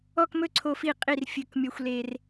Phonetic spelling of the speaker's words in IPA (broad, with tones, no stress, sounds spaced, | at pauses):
ɔ˦ k m ɵ˥˨ ǀʰ o˦ f i˥˨ qʼ i˥˨ r fʲ ɵ˥˨ k mʲ ɔ˦ xʷ l e˦ r